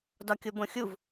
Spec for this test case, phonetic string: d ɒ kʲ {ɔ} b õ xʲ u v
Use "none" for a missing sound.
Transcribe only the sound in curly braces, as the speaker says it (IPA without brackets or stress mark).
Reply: o